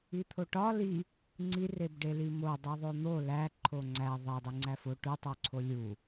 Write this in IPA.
i t̪ʰ o ʈ ɒ l i | ŋ͡ǀ i r e b ɖ e l i m o dˤ u ðˤ o n̪ o l æ ǃʰ o ŋ͡ǀ æ ðˤ e dˤ i ŋ͡ǀ æ f o ʈ u tˤ o ǀʰ o lʲ u

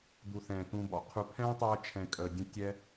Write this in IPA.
d̪ u˧ θ ɛ̃ː˨ t̪ ũ˧ b ɔ̰˨ qʰ u˧ pʰ ɛ̃ː˦ tˤ ɛː˧ t͡ʃʰ ɛ̃˨ kʼ ə˨ dʲ ə̃˦ tʲ ɛ˦

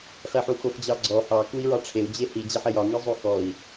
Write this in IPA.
χ e ħ u x o x d͡ʑ ɑ ɡ͡ǀ ɔ h ɑ k u i̯ ɹ ɑ ʈ͡ʂʰ e u̯ d͡ʑ e h i d͡ʑ e ħ e j ɒ ŋ i zˤ o x ɔ i̯

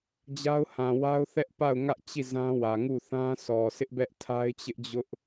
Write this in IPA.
d͡ʑ a˦ ʊ̯ h ã˨ w a˦ ʊ̯ θ ɛ˦ ʔ p a˦˨ ʊ̯ ŋ ä˦ ʔ t͡ɕ i˦˨ z ã˦ w ä˨ ŋ u˦˨ θ ã˦ sʰ ɔ˨ sʰ ɪ˦ ʔ b ɛ˦ ʔ tʰ a˦ ɪ̯ t͡ɕ ɪ˦ ʔ d͡ʑ ʊ˦ ʔ

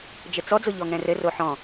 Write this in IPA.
d͡ʒ ɘ t͡s ɔ d͡z o ʎ ɔ ŋ ɛ̃ r ɘ r o ħ ɔ̃

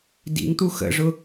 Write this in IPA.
d ḭ ŋ t̪ u x ə̰ ʐ ʊ

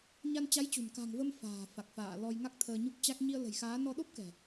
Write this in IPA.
ɲ a˧ n t͡ɕ a˨˦ j t͡ɕ ṳ˨˩ n k a̤˨˩ ŋ v ə˧ m f a̤ː˨˩ f a˨˩ k̚ f a̰ː˧˨ l ɔ˧ j ŋ a˦˥ k̚ t̪ʰ əː˧ ɲ u˦˥ k̚ t͡ɕ a˦˥ k̚ ɲ i˧ ə̯ l ə̤˨˩ j x aː˨˦ n ɔ˧ ɗ o˦˥ p̚ k ɛ̤˨˩

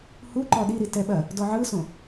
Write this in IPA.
h u ǃ ɔ ɗ i ɾ i t ɛ ɓ ɐ | d ɔ ʕ ɯ s õ

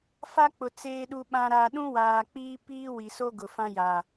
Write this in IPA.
f a˦ k͡p ʊ˨ t͡s eː˨ ɗ u˨ ɓ ã˨ ɾ aː˨ ɗ ũ˦ w aː˨ k͡p iː˦ p iː˦ w i˨ s o˦ ɡ ʊ˨ f ã˦ j a˨

